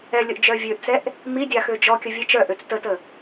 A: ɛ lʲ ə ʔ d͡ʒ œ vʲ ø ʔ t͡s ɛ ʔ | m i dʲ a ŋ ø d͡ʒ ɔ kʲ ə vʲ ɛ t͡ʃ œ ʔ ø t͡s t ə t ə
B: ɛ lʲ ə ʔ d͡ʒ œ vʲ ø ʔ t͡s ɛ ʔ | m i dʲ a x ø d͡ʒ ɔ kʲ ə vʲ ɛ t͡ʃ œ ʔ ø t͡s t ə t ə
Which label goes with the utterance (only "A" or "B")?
B